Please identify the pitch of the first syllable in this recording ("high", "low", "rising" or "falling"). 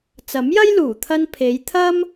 rising